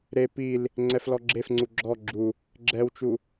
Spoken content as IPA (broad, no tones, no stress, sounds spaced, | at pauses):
ɾ e p i l | ŋ͡ǀ ɛ f l ɔ ɡ͡ǁ e f ŋ͡ǀ u ɡ͡ǁ ɔ ɡ͡ǁ u | ɡ͡ǁ ɛ w t͡ʃ u